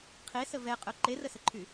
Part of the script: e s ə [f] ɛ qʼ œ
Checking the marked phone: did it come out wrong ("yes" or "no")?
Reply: yes